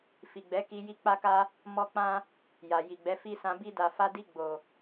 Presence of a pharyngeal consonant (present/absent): absent